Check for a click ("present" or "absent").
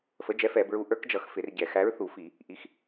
absent